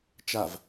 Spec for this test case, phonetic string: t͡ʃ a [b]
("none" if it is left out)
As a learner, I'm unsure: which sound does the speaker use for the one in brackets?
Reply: v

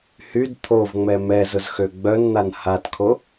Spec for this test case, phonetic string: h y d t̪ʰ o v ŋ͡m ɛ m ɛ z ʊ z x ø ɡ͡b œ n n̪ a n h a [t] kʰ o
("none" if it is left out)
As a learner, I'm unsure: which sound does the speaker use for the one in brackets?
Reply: t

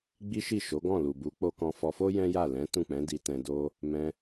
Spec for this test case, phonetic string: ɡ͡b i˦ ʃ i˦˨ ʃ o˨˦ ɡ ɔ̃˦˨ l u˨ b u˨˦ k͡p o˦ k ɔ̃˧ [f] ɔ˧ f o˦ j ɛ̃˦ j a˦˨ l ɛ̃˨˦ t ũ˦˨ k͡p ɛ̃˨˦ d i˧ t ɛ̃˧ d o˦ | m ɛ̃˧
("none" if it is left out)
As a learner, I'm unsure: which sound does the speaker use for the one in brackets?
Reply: f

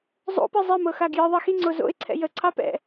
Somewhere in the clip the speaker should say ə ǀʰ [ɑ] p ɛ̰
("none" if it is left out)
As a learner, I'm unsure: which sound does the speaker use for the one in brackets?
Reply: ɑ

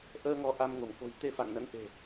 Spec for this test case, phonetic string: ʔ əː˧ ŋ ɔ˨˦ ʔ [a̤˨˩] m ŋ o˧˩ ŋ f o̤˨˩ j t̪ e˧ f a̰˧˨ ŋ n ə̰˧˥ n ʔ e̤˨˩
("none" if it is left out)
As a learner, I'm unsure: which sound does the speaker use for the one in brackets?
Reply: a˧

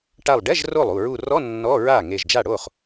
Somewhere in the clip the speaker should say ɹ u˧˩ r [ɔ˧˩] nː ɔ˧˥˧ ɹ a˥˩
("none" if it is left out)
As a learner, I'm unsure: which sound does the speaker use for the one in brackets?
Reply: ɔ˧˥˧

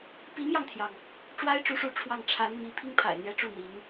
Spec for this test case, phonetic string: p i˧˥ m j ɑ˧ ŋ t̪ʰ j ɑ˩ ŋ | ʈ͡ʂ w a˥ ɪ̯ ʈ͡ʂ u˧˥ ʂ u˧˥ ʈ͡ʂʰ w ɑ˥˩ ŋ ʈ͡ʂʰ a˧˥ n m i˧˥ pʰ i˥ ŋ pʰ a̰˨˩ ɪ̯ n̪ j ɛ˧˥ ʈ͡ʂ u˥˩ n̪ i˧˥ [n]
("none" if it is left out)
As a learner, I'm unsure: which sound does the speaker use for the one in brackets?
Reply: ŋ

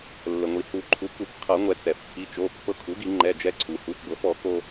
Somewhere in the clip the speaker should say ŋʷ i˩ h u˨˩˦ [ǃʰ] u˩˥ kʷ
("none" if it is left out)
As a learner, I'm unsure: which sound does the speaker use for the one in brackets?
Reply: ǃʰ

